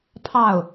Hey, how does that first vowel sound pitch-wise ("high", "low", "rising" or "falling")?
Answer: falling